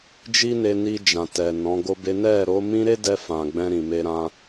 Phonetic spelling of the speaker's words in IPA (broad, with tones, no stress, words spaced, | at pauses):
d͡ʒi˦ne˧ni˧ d͡ʒã˨tɛ˨ nɔ̃˨˦ɡo˦be˦ nɛ˦˨ ɾo˨˦ mĩ˦ɾe˦dɛ˧ fã˨ɡ͡bɛ̃˧ ɾĩ˨me˧ɾã˧